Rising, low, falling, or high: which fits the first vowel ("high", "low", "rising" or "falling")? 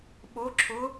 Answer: rising